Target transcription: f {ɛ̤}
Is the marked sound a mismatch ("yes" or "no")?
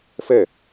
yes